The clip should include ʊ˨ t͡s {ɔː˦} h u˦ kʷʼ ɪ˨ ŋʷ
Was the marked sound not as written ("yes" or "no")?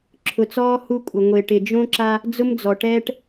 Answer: no